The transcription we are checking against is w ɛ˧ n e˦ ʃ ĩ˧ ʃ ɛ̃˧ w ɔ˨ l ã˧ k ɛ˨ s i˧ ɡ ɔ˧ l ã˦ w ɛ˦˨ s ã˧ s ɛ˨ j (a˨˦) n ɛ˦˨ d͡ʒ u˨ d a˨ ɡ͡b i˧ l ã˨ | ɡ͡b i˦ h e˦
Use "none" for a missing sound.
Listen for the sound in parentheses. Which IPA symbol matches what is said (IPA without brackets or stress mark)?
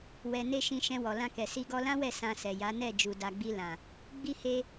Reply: a˨˦